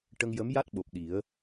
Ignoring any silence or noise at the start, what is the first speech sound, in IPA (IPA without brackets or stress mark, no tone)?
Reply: ʈ